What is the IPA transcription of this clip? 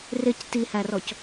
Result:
rɪc tihærɔc

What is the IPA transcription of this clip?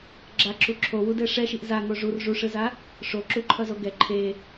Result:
ɡ͡ǁaǁu ǁʰowudɛ ʂɛʃiʔ zaŋo ʐur ʐuʂɯza | ʂoǁuǃʰʌzo ɡɛ ǃʰe

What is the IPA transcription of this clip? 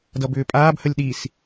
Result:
dʌbʏːpʼaːbhəlʲ ɗis

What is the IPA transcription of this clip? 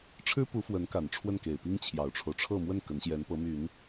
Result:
ʈ͡ʂʰɻ̩˥pu˧˥fwə˧˥n ka˨˩nʈ͡ʂʰwə˥˩nke˨˩ɪ̯pi˥ŋ t͡ɕʰjɑ˨˩ʊ̯ʈ͡ʂʰo˦ʊ̯ ʈ͡ʂʰɤ˥˧mwə˥˩n kə˧˥nɕjɛ˧˥npɤ˧˥my˨˩˦n

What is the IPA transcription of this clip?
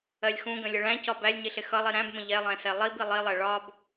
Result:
ɜlʲxũɡə̃lʲə ɭæ̃cɒ bælʲɲiɬɪ xʌlˠi ɾæ̃bmə̃ ʎɛlˠɛ̃sɛ lˠib ilˠilˠɛ ɭɒb

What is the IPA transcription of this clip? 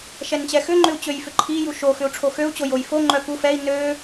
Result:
ʃɛnt͡ɕɛxʏŋ͡ǃʏu̯ t͡ɕøjfʏǃʰiju ʃoxʏu̯ ʈ͡ʂʰoxøu̯t͡ɕo jojfoŋ͡ǃœ ku fɛi̯ nø

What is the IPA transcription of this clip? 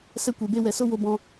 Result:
sɛ˧kʷe˨be˧ wɛ˨so˦wo˧ bɔ̃˧

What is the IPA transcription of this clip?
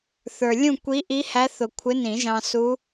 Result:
θə˞˩lʲũ˥˨ kʷi˧˥ʔi˧˥hæ˧˥ θʊ˧˩ kʷʰɪ˧˥nĩ˨˩˦ʒɑ̃˧ su˧˥

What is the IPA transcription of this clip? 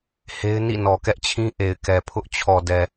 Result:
he˦ɪ̯ nḭ˦˨nɔ˨kɛ˦ʔt͡ɕʰĩ˦ ʔe˨ɪ̯kɛ˨pʰʊ˦ʔ t͡ɕʰɔ˨dɛ˨

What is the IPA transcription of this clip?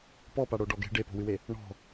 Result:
pɔpaɽo ɖɔɡe̤ ɖepo̤wɨwe | ɳɔ̤

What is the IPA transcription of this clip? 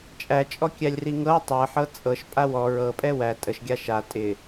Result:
t͡ʃʼæt͡ʃʼɔ kʲælʲriŋɤw tˤɤħɤ t͡sʼɤʃ pʼawɔ ɹɤpʼɛ wæ tʼəʃɡʲa ʃa tʼɪ

